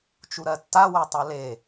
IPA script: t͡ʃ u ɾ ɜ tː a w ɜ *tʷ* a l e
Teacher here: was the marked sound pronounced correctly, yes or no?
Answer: no